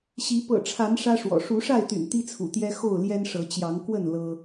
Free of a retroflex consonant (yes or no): no